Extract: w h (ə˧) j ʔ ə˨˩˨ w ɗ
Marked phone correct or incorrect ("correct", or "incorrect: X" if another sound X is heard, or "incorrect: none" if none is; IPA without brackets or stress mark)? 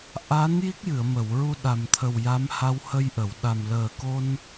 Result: correct